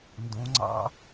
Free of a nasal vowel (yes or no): no